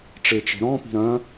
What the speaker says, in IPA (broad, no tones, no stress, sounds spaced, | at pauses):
ʈ͡ʂ e t͡ʃ e̤ ɾ ɔ̃ p i̤ ɾ ɐ̃